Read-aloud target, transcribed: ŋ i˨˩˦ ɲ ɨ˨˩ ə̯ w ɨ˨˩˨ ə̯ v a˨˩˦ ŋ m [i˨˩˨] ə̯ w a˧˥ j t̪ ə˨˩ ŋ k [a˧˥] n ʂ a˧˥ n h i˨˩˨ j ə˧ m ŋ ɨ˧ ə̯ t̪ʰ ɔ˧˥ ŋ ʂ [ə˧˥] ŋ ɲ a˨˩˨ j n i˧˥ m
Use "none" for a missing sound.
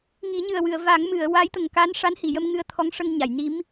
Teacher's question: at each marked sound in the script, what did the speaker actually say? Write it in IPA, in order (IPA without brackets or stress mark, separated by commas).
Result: ɨ˨˩˨, a˧˥, ə˧